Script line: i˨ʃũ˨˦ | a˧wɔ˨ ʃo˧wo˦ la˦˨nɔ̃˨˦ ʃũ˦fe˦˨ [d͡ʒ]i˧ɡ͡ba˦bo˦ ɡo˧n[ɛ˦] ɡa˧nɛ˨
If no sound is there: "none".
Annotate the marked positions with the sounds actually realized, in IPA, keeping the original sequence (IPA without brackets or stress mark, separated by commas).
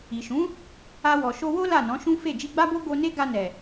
d͡ʒ, e˦